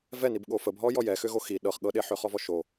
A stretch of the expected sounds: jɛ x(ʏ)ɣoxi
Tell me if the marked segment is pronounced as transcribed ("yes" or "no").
yes